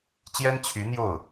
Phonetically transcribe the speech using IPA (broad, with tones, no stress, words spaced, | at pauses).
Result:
t͡ɕjɛ˥nt͡ɕʰy˧˥n̪jo˥˩ʊ̯